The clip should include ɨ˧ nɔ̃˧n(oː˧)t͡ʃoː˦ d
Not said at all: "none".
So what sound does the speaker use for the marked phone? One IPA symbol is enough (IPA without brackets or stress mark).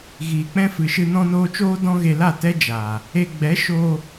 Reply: oː˧